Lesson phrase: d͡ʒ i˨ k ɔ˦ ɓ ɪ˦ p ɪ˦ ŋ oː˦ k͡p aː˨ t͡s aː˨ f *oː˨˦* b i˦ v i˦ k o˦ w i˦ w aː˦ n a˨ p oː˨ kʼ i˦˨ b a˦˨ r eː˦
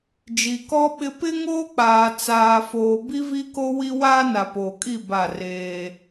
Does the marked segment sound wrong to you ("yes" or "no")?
yes